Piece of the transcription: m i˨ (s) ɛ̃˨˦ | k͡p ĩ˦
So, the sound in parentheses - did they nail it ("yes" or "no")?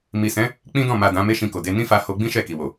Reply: yes